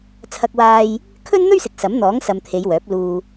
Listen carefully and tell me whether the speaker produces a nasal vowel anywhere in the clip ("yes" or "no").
no